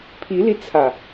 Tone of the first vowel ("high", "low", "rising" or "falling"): rising